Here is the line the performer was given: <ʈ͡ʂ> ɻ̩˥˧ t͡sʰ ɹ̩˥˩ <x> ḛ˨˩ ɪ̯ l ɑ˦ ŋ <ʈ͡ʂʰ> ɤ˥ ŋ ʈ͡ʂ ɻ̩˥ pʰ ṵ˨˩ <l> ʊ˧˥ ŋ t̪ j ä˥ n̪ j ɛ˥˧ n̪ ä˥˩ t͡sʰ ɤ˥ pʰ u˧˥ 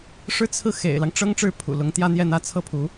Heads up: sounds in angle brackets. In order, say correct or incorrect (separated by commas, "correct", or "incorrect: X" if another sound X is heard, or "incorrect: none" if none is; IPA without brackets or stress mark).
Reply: incorrect: ʂ, correct, incorrect: ʈ͡ʂ, correct